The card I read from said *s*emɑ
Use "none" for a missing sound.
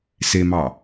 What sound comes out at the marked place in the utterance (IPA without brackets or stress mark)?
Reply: s